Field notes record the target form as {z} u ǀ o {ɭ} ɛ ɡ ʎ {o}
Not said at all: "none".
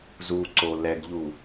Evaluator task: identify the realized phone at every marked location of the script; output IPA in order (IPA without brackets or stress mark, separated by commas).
z, l, u